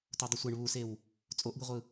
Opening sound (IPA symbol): t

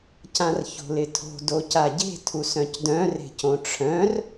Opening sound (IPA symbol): c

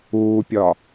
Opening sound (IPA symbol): uː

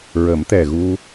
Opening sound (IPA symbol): ɹ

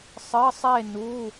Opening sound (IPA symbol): sˤ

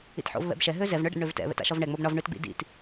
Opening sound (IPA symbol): ḭ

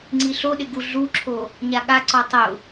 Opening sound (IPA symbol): ŋ͡ǀ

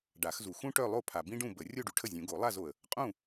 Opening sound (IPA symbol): ɖ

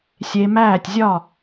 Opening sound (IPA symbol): sʲ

